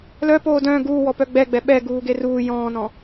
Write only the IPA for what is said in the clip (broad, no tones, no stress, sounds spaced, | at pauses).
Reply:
l œ p oː d œ̃ː ɡ uː w ɔ p œ ɡ͡b ɛ ɡ͡b ɛ ɓ ɛ ɡ uː ɡ e r uː j ɔ̃ː n ɔ̃